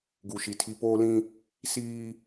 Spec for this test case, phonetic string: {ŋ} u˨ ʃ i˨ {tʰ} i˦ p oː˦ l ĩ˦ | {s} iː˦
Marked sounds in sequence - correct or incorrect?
incorrect, correct, correct

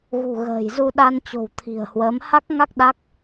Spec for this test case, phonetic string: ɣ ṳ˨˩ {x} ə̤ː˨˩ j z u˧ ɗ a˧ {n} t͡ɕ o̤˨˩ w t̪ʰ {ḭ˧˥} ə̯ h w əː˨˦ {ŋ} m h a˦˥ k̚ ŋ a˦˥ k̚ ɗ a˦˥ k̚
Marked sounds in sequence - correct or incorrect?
incorrect, correct, incorrect, incorrect

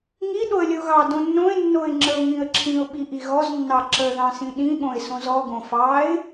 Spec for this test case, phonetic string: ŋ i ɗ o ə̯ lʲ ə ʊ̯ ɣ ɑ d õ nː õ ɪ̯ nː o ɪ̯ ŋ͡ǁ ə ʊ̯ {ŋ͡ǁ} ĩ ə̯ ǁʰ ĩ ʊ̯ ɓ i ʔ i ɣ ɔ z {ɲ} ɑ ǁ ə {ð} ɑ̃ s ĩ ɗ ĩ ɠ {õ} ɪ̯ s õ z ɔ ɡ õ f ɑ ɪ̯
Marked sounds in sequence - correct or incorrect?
incorrect, incorrect, correct, correct

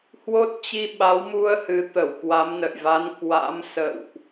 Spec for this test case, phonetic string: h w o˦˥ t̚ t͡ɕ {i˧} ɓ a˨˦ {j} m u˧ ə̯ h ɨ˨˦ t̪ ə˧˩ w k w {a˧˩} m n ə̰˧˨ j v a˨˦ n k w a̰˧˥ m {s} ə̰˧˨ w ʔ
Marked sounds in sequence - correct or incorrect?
correct, incorrect, incorrect, correct

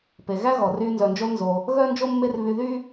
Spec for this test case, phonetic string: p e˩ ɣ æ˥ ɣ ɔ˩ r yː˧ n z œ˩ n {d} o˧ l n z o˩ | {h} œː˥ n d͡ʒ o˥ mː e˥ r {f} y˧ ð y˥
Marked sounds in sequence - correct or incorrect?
incorrect, incorrect, incorrect

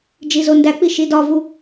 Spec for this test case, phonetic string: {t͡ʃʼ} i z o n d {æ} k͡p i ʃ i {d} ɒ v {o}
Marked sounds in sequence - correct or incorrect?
incorrect, correct, correct, incorrect

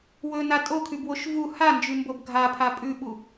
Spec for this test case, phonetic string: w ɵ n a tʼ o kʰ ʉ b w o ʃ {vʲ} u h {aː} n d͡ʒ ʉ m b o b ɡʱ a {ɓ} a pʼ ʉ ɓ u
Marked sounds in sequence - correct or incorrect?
incorrect, incorrect, incorrect

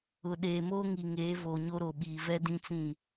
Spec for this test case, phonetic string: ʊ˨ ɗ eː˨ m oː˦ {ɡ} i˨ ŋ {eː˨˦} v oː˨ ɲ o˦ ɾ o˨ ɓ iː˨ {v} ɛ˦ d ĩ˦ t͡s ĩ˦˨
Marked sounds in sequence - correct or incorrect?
incorrect, correct, correct

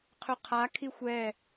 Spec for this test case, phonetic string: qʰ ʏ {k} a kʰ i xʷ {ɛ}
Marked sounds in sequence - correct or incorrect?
incorrect, correct

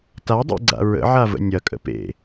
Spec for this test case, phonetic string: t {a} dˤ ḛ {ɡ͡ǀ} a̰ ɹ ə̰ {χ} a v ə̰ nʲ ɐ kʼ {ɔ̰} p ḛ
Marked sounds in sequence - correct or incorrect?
correct, correct, incorrect, incorrect

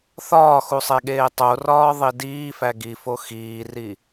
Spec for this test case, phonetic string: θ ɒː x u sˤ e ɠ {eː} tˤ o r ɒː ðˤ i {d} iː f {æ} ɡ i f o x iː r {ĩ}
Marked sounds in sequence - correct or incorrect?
correct, correct, correct, incorrect

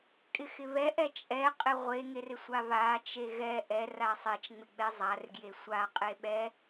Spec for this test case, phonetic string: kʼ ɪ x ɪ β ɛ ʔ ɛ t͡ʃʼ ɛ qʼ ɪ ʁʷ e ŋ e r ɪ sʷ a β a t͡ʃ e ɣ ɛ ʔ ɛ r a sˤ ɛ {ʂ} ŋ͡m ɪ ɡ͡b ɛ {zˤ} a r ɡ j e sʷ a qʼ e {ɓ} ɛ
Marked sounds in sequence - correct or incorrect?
incorrect, correct, correct

